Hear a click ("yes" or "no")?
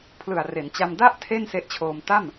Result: no